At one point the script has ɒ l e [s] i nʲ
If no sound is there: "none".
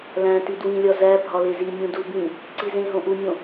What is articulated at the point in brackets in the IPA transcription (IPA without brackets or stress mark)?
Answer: z